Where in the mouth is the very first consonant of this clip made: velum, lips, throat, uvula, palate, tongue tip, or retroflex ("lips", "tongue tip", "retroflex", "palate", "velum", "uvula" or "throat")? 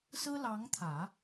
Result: tongue tip